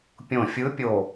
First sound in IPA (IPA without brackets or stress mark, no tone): pʲ